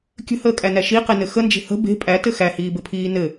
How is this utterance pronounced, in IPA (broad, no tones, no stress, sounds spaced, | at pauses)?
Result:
kʲ ə̤ h əː kʼ æ n æ ʃ i q e n ɘ x ə n d͡ʒ e̤ h ə̤ b e̤ pʼ æ t ɘ x æ h iː b ɘ pʰ iː n ɘ